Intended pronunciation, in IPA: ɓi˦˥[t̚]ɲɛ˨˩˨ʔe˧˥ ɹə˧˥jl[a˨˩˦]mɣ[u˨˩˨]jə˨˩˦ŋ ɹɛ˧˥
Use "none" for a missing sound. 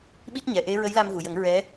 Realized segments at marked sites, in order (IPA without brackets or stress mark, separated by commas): t̚, a˧, u˨˩˨